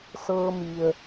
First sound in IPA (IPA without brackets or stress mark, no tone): s